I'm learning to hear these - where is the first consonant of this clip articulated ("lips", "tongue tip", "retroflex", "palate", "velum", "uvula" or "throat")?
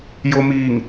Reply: palate